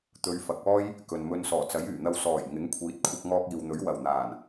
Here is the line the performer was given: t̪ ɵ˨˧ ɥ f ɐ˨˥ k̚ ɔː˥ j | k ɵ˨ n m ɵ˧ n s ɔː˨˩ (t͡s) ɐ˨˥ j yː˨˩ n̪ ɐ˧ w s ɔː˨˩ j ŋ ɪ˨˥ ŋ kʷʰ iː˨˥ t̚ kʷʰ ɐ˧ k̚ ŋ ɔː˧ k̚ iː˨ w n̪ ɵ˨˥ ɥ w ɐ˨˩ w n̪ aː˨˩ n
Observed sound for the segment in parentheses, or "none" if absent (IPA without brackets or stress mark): t͡s